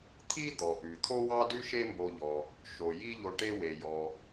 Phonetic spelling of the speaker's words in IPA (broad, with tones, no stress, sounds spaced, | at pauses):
t̪ʰ i˥ d̪ ɔ˩ ʔ ʉ˩ t̪ʰ o˥ w ɑ˥ d ʉ˥ ʃ e˥ m b o˧ ʎ ɔ˩ | ʃ o˩ j i˥ ʎ o˧ ʈ e˥ w e˩ j ɔ˩